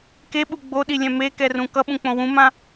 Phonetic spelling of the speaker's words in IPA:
k e ɓ u ɡ͡b o ɗ i lʲ ɛ̃ m e k ɛ r ũ k ʌ ɓ ũ k͡p õ w ũ m ã

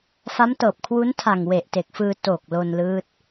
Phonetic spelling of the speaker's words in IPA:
f a˦˥ m t ɤː˨˩ p̚ kʰ w u˦˥ n tʰ a˨˩ ŋ w e˨˩ ʔ t e˨˩ k̚ f ɯː˧ t o˨˩ k̚ l o˧ n l ɯː˦˥ t̚

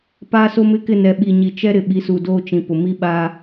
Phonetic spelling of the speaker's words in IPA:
p aː˦ s o˦ m ɪ˦ k ɪ˦˨ n ɛ˨ ɓ i˨ ɲ i˨ t͡ʃ ɛ˦ ɾ ɪ˨ ɓ i˨˦ s u˨ d oː˦ t͡ʃ ĩ˨ p ʊ˨ m i˦ ɓ aː˦

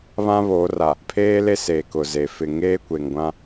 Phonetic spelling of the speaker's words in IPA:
β ã˦ β oː˨˦ r a˨ | pʰ eː˦ l e˦ s eː˨ k ʊ˨ z e˨ f ɪ˨ ŋ eː˦ kʷ e˨ ŋ ɡʷ ã˦

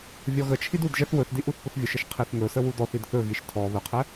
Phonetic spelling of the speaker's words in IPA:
vʲ ɔ ɣ ə t͡ʃʰ i d u d ʒ ɛ θ w ɵ θ d i ʔ u θ p ʊ θ vʲ ʊ ʃ ɘ ʃ qʰ i θ ŋ ɵ s ə w u d ɔ θ i d θ ɵ ɣ i ʃ tʰ ɔ β ə qʰ ɛ

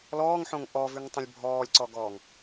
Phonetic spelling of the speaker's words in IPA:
l ɔː ŋ ħ õ ŋ ʔ ɔ v ʉ ŋ tˤ ə̃ lʲ bʱ ɔː lʲ ǀ ɔ ɡ ɔː ŋ

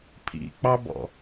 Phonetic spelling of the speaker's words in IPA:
pʰ ḭ k͡p ɑ b ɔ̰

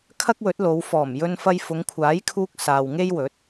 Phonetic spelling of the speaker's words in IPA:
kʰ ɐ˥ k̚ w ɵ˨˥ t̚ l o˨˧ w f ɔː˨˩ m j ɵ˧ n f ɐ˧ j f ʊ˨˧ ŋ kʷʰ aː˨˥ j kʰ uː˧ k̚ s aː˨ w ŋ e˥ j w ɵ˨˥ t̚

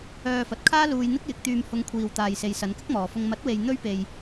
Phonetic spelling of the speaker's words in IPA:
œː˧ f ɐ˨ t̚ kʰ aː˥ l uː˧ j n̪ ɪ˥ k̚ j ɪ˨˥ k̚ t̪ yː˧ m h ʊ˨˧ ŋ kʷʰ iː˨ w t̪ aː˨ j s e˨ j s ɐ˨˧ n k ɪ˥ k̚ m ɔː˨ f ʊ˧ ŋ m ɐ˨˥ t̚ w e˨ j n̪ ɵ˥ ɥ p e˧ j

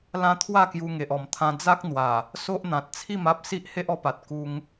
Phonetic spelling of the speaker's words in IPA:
l ã˦ t̪ʰ w a˥˧ k j u˧ ŋ e˨ ʔ ɔ˨˩ m t̪ʰ ã˧ d͡z a˦ k̚ n̪ w a˨˩ | s o˦ ʔ n̪ ã˨ t̚ t͡sʰ i˥˧ m a˦ p̚ s i˦ ʔ h e˦ ʔ ɔ˧ p a˨ t̚ k u˧ ŋ

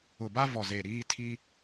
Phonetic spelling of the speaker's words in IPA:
ʊ˨ b a˦ v ɔ˨ z e˨ ɾ iː˦ tʰ i˦

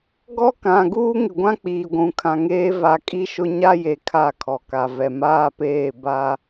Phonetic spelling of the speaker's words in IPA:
ɡ ɔ˦ k ã˨ ɡ uː˦ ŋ ɪ˨ ɡʷ ã˦ k͡p iː˨ ɡʷ ũ˨ kʰ ã˨ ŋ eː˦ v a˨ kʼ i˦ ʃ ʊ˦ ɲ a˦ j e˨ kʰ a˦˨ kʰ ɔ˨ k a˨ v ɛ˨ m aː˦ p eː˦˨ b a˦

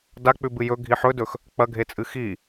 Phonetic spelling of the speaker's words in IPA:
d a k͡p ʉ b ɨ j ɵ ɡʱ i ħ ɵ d ɵ x | k͡p ɐ ɡʱ e t͡sʼ ɨ x i

